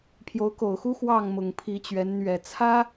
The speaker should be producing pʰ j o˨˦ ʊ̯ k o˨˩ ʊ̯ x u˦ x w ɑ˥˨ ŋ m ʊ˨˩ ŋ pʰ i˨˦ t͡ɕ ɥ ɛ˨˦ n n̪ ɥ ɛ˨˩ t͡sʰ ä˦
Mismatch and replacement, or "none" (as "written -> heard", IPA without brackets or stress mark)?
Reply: none